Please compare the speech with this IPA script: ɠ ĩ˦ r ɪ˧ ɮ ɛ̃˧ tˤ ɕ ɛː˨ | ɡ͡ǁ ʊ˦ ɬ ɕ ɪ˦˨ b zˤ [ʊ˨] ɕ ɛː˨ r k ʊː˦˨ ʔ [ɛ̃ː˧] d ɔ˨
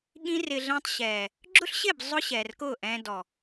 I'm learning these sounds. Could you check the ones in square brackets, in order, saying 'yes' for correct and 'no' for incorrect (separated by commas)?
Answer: no, yes